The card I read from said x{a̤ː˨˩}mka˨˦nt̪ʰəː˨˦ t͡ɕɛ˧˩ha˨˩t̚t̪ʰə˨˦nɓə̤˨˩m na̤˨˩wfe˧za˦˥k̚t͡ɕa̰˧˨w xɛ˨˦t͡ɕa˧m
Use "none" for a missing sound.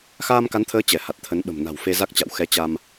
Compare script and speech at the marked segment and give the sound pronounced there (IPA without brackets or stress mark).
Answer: aː˧